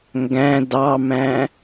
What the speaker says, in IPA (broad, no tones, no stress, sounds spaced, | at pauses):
ŋ ɡ æ̃ d ɑ m æ̃